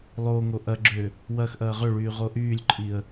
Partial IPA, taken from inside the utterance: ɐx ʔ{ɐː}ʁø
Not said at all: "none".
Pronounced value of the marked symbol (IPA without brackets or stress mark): ɐː